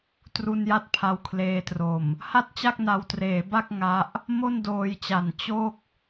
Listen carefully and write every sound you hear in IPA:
tru˧nja˦˥t̚ pʰa˧wkʰleː˧tro˨˩m | ha˥˩t̚t͡ɕa˥˩k̚na˧wtreː˩˦ ba˥˩k̚ ŋa˦˥ʔ | mo˥˩ndoː˧jt͡ɕa˨˩n t͡ɕo˥˩k̚

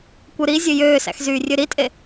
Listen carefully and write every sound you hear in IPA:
kʷɯɾi zʲøjøːsæ̰xzyː rʲøɾitʼe

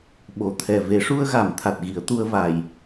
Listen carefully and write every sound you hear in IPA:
ɓo˨˩˨t̪ʰɛ˨˩ ve˨˩˦ʂu˧ə̯ɣa˨˩˨m t̪ʰa˨˩t̚ɣi˨˩˦ə̯t̪u˧ə̯va˨˩j

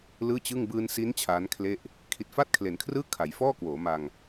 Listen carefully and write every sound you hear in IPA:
lɯː˥˩t͡ɕɯ˥˩ŋ bɯː˧nsi˦˥n t͡ɕʰaː˦˥nkʰle˥˩ʔ | kʰi˨˩t̚fa˥˩t̚kʰle˩˦nkʰrɯː˥˩ kʰa˩˦j fɔː˥˩kwoː˩˦ma˧ŋ

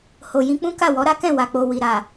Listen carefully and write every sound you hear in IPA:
ho˨jĩ˧k͡pũ˦ ka˦˨wɔ˨˦ɾa˦ kɛ̃˦˨ wa˨k͡po˨wi˨ ɾa˨

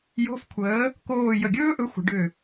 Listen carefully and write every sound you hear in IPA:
jo̤˧˥˧fkʷʰəː˨˥ | koː˥˧ jə˧˩ɡʲɵː˥ʔɵ˨˥ xʷə̤˩˧ɖʏ˧˩

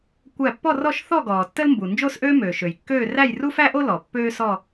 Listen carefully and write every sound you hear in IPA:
kʷæ˧˩pːɔ˥˧rɔ˥˧ʃ θɔ˥˧ɡɔː˩ tːə˥lmbu˩ nd͡ʒo˥˧sʔøː˥møː˩ ʃø˩jkːøː˥˧ ræ˥˧jru˥fæ˥ʔo˥ lɔ˩ pːøː˥sɔ˥˧

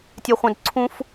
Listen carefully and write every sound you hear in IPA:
tʲɛ˧χʷœ̃˧d ǀʰũ˥f

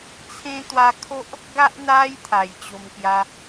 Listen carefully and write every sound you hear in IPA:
t͡sʰẽ˧t̪wa˧kʰo˦ʔ | ɡa˦ʔ n̪a˧j t̪ʰa˨˩jt͡ɕo˧mkja˦

